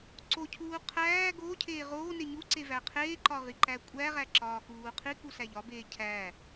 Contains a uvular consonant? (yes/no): yes